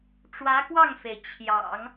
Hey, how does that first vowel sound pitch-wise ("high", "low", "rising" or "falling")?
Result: rising